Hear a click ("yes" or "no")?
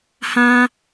no